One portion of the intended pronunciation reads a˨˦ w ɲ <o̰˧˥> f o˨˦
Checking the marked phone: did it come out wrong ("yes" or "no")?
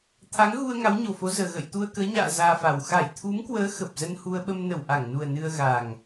yes